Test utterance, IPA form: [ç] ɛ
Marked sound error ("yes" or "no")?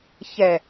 no